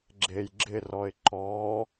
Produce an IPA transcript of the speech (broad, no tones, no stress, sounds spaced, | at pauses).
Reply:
ɡ͡ǁ e j ɡ͡ǁ ɪ r ɔ ɪ̯ ǃ ɔ